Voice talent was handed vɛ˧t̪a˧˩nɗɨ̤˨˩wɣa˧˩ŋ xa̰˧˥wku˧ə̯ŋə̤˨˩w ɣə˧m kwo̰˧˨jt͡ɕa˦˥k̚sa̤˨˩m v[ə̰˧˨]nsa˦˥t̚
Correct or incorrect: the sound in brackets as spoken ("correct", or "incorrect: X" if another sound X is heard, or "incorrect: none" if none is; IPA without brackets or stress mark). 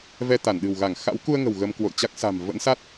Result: incorrect: ə̰˧˥